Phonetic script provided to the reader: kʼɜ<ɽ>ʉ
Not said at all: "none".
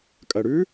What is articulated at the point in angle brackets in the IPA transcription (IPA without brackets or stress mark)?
ɽ